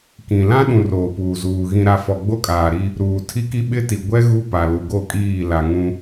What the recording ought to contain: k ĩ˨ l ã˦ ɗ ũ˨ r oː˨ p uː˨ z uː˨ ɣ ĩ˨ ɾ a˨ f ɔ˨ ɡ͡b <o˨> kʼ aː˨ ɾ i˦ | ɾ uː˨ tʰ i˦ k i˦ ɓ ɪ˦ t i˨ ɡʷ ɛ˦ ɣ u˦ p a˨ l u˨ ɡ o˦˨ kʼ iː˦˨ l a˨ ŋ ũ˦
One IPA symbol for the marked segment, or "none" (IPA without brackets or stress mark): o˦